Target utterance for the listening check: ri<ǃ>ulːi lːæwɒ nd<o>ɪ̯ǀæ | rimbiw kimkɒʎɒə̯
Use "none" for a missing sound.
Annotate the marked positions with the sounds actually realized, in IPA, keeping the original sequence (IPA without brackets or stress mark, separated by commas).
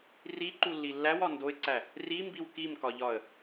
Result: ǃ, o